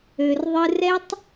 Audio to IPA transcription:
ø˧ r ðˤ ɨ˦ r ɛ˦ tˤ

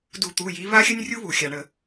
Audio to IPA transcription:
d u˧˩˧ t̪ u˩˧˩ j i˨˦ β a˥ xʲ ə˥ nʲ rʲ u˥ β u˩ xʲ a˩ ɳ ə˧˩˧

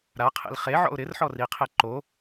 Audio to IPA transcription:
ɾ a qʰ ḛ l χ e ʕ ɔ̰ ʊ̯ ɾ ɪ r ħ ɔ r i qʰ e ǃ o

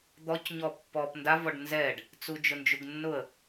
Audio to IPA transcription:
d̪ ɔ c ɲ ɔ pː ɔ p n d a v ɔ ɖ n z ɛ ɖ | t͡s u d͡ʒ ʊ n d͡ʒ u ɡ nː ʊ ə̯

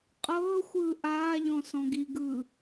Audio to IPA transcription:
qʼ ɤː xʷ ɯː ʔ aː ʎ ɔ̃ s ɔ̃ ɡ i ɡ ɯː

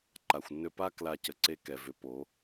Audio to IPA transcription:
ǃ a˨ xʷ nː ʏ˧ p a˦ k l a˧ c ə˨ ǀ e˧ k ɛ˨ v ʏ˨˦ p o˨˦

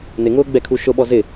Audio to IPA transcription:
n ɪ ŋ ʊː ɡ͡b ɛ kʰ u ʃ ʊ ɓ ɔ z ɪ

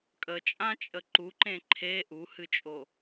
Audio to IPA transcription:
kʼ ə t͡ʃʼ ã t͡ʃʼ ə ǃ u ǃ ẽ ǃʰ e ʔ u h ɨ t͡ʃʼ o

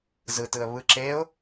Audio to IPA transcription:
z ɯ t ɯ ə̯ β ɯ ǁ e ʊ̯

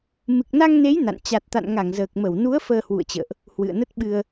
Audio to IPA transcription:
m ɨ˨˩ k̚ n a˧ ŋ n e˨˦ j n a̰˧˨ n t͡ɕ a˨˩ t̚ t̪ a̰˧˨ n ŋ a˧˩ ŋ z əː˨˩ k̚ m ə˧˩ w n u˨˦ ə̯ f əː˧ h w ṵ˧˨ ə̯ t͡ɕ ə̰ː˧˨ ʔ | h w ɨ̰˧˨ ə̯ n ə˦˥ t̚ ɓ ɨ˧ ə̯

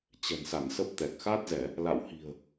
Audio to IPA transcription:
t͡ɕ ɛ̤˨˩ n s a˧˩ n s ə˦˥ p̚ t̪ ɛ˨˩ k̚ x a˦˥ t̚ z ɛ˧˩˨ | l a̰˧˨ w h i̤˨˩ ə̯

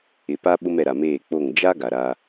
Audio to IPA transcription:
ɪ˨ p a˦ ɓ ʊ˦ m ɛ˨ ɾ a˨ m eː˦˨ k͡p o˦˨ ŋ d͡ʒ a˦ ɡ a˨ ɾ a˦

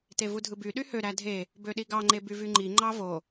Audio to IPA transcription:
t e v u dʱ ɯ b y ɗ y h ø ɾ æ dʱ e | b ø ɗ i ɡ ɑ ŋ͡ǃ e b y v y ŋ͡ǃ i ŋ͡ǃ ɑ v o

